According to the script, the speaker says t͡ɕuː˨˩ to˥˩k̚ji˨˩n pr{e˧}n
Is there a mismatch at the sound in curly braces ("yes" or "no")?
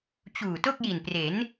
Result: yes